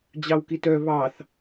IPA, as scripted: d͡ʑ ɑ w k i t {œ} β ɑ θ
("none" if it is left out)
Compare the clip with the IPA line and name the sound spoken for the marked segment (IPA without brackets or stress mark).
œ